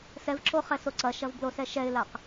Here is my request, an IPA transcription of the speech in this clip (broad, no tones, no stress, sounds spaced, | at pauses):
s ɛ v ǁ o χ ɛ s o ǀ ɐ ʃ ɐ v b l o s ɛ ʃ ɛ ɪ̯ l a q